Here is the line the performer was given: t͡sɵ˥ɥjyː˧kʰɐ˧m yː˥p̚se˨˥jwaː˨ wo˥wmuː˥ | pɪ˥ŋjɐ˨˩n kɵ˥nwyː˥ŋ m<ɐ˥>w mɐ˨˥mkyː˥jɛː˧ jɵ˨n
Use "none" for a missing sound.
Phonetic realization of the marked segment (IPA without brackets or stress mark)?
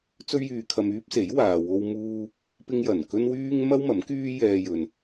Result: ɐ˥